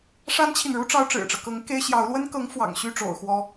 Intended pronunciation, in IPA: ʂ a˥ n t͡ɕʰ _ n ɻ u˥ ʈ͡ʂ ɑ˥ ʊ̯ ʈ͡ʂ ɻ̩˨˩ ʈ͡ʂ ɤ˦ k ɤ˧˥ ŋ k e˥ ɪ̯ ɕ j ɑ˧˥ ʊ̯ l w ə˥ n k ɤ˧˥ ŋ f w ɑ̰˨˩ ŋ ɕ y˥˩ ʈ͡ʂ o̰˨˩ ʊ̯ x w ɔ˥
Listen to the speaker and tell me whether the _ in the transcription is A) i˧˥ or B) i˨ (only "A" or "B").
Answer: B